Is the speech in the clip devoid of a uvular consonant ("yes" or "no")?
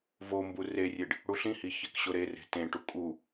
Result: yes